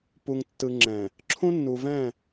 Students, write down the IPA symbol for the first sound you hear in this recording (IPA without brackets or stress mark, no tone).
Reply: p